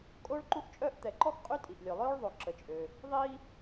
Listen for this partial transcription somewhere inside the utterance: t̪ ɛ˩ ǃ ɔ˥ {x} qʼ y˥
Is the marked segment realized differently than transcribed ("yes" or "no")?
no